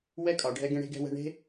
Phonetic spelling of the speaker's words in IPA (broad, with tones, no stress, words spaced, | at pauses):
wɛ˦kʼɒ˩ ɖʱɛ˦ɡẽ˦ ɽe̤˦ɡɛ̤˦wɛ̤˦ ɳe̤˦